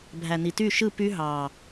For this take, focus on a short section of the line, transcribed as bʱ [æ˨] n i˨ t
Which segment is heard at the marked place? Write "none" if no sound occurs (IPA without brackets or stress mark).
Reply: æ˨